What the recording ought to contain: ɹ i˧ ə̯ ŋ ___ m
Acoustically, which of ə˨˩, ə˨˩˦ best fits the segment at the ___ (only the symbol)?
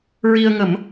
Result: ə˨˩˦